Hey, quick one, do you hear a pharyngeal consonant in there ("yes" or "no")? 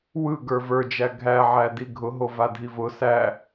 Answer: yes